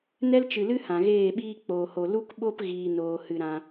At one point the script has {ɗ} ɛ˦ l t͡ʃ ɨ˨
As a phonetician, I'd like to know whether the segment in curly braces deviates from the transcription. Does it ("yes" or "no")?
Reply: yes